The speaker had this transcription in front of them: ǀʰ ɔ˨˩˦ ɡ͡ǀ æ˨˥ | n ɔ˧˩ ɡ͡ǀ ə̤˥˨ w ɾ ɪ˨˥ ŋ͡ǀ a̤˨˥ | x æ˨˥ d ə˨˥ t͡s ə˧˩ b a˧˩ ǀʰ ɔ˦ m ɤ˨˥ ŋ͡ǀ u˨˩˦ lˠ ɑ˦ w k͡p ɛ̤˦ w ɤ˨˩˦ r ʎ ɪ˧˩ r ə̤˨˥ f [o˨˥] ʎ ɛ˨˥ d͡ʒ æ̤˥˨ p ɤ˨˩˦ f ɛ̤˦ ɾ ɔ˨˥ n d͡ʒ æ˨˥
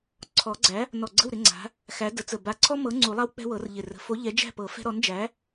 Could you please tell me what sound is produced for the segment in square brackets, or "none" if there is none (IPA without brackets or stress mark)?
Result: o˨˥